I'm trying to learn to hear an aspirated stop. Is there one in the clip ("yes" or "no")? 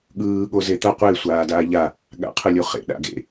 yes